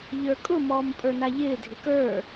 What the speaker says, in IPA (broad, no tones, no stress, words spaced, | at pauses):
ʎə˞kʼʊ mɔːmpʼə˞naʎɪː dʱɪkə˞